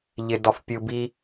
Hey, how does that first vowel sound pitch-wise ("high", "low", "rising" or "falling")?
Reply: low